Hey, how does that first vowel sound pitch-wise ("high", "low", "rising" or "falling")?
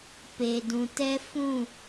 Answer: low